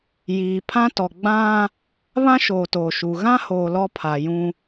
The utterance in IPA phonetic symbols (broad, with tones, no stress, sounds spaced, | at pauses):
j iː˨ pʰ ã˦ t ɔ˨ ɡ͡b ã˦ | β ã˦ ʃ oː˨ t oː˨ ʃ u˨ ɣ ã˦ h oː˨ l ɔ˦ pʰ a˨ j ũ˦